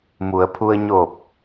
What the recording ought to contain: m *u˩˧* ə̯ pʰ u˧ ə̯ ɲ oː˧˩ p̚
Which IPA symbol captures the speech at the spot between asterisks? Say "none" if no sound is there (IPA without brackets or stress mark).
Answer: u˩˧